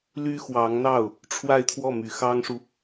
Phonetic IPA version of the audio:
ly˥xwɑ˧˥ŋn̪ɑ˥˩ʊ̯ | ʈ͡ʂʰwa˥˧ɪ̯t̪ʰwɔ˥˩ my˨˩xɑ˥ŋʂu˨

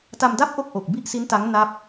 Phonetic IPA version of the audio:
ta˧mda˥˩p̚ ʔo˥˩k̚ʔo˨˩k̚ bi˥˩ʔsi˦˥n ta˦˥ŋ na˥˩p̚

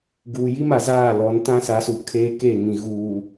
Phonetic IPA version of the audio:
ɡuː˨ji˦ma˨zaː˦˨ lɔ˨˦n tã˦sa˨˦su˨ kʰeː˦ke˦˨ŋĩ˨ ɣuː˨

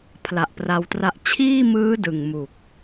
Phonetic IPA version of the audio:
pʰla˨˩ʔpra˧wtra˦˥ʔ t͡ɕʰiː˥˩mɯː˦˥ dɯ˨˩ŋmu˨˩k̚

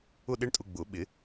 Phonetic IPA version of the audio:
ʊ˥˧ɗe˦˥ɳtʼʊ˧ ɡ͡bʊ˨˩˦ ɓɪ˨˩˦

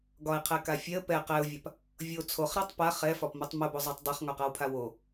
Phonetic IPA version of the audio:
ɡɒɪ̯qʰɛka fʲɛə̯ pɛ qɛʊ̯vʲap | vʲo t͡sʰoχɾatˤ paχ ɛfɒpmotˤ mobozˤatˤ dˤaχŋɒqawpʰa wo

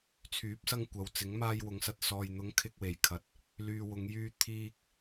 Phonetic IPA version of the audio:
t͡sʰyː˨˥p̚sɐ˥ŋkʷɐ˨wt͡sɪ˨˥ŋ maː˥jwʊ˨˧ŋsɐ˧t̚sɔː˧j n̪ʊ˨˧ŋ kʰɪ˧k̚ we˨˩jkʰɐ˨t̚ | lyː˧wʊ˨˧ŋjyː˥ t̪ʰiː˥k̚

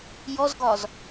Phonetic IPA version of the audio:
jɔzɡɒz

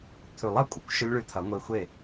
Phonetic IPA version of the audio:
t̪ʰʉ˨˩˦lˠɐ˥˧kʷʼɐ˩kʷ ʃɵ˦˥lʲɭʉ˧t̪ʰɐ˨˩˦ ŋʷe˧xʷe˥˩

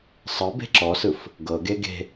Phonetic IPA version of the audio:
sˤɤ be̤ǁɔsɯf | ɡɤɡe ɡe̤

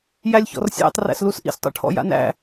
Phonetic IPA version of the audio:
jælʲçɔ̰rsʲæ̰tˤ ræ̰slusʔḭs tˤo̰ʈʰɔ̰ja̰næ̰

